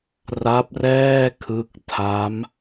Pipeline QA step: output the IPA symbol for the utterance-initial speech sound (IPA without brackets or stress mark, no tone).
r